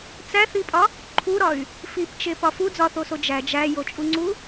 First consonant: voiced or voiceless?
voiceless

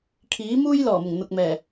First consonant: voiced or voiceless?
voiceless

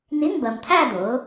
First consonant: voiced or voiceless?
voiced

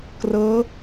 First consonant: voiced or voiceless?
voiceless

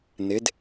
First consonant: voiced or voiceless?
voiced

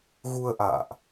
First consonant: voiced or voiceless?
voiced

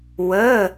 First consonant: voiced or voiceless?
voiced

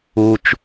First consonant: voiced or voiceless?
voiceless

